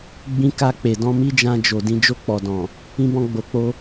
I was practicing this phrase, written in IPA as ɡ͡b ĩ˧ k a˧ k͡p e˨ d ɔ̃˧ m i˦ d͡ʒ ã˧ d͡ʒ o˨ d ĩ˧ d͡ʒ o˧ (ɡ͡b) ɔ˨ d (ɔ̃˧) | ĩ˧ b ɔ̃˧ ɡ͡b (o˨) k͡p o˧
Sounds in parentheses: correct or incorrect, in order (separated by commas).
incorrect, incorrect, correct